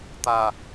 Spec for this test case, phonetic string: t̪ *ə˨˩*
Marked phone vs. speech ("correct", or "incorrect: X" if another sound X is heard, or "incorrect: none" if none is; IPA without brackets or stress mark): incorrect: a˨˩